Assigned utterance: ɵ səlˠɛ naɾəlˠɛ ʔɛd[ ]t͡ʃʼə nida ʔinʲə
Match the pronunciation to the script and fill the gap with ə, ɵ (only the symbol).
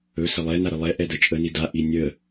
ə